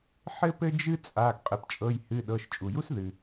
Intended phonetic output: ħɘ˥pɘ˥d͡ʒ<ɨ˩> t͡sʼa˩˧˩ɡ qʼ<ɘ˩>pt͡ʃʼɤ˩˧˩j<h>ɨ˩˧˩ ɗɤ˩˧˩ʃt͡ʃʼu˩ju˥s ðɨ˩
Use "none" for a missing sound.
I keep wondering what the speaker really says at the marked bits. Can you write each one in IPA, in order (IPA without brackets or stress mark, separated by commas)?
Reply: ɨ˥, ɘ˩, h